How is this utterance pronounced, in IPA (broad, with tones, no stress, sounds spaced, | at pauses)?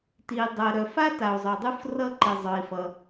t i˩ dˤ ɜ˩ ɾ œ˩ f a˥ t a˩ u̯ zˤ œ˩ dˤ u˥ f r ʌ˥ ǃ i˩ zˤ œ˩ i̯ f ʌ˩